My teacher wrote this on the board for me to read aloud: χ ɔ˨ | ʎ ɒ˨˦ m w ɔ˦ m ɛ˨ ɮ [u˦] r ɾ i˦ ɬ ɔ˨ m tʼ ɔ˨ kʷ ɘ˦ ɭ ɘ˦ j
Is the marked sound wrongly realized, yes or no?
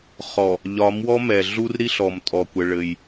no